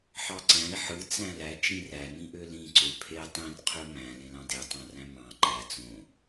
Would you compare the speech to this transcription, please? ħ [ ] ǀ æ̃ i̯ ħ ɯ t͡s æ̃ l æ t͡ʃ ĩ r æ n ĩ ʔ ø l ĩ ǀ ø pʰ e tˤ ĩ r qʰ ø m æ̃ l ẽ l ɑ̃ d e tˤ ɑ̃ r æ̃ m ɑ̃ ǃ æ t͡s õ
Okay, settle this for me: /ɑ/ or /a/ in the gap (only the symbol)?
ɑ